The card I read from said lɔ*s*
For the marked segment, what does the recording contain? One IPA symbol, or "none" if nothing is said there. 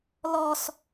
s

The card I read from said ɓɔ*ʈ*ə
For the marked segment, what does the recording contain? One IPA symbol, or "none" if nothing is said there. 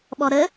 ɾ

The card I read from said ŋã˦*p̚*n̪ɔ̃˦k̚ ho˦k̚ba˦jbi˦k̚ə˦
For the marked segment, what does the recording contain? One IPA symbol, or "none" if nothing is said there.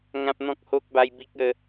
p̚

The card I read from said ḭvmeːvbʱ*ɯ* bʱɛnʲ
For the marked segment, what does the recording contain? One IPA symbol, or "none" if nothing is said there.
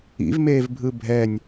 ɯ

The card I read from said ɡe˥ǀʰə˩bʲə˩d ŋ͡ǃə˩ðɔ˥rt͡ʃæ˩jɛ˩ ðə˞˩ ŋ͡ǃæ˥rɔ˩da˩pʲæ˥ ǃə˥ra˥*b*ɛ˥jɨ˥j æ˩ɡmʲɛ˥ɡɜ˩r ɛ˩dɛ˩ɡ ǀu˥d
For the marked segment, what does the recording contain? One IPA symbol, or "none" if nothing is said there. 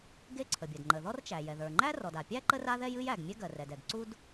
ð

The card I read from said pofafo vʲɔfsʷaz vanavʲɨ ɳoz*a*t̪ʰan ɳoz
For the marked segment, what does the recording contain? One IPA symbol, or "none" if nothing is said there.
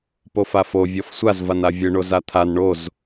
a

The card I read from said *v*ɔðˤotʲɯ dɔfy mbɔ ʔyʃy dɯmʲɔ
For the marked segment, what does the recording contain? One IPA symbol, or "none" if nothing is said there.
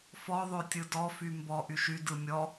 f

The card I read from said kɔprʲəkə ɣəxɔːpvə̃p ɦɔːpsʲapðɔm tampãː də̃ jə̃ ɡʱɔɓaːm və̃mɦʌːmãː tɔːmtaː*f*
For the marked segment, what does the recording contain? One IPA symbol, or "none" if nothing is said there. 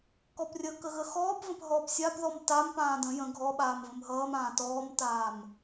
m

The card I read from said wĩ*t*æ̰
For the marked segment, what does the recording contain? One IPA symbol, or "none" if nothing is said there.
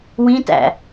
t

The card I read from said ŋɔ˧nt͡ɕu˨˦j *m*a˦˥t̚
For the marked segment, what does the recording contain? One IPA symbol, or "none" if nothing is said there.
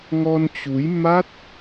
m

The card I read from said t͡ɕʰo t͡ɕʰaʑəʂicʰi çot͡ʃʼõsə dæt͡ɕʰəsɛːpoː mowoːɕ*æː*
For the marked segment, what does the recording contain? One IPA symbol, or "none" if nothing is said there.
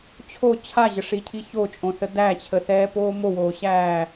æː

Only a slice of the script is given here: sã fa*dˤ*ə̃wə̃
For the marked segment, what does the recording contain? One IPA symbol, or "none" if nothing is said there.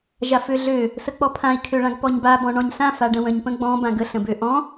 ɖ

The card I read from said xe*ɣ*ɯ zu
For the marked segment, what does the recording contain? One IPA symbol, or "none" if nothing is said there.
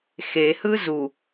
h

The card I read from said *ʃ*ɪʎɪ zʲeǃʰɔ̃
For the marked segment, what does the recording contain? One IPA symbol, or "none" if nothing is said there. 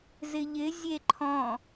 z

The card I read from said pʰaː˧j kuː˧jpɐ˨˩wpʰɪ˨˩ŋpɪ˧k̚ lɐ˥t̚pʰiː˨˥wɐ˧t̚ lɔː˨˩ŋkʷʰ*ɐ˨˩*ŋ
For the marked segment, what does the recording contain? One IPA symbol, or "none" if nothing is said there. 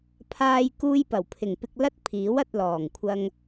ɐ˧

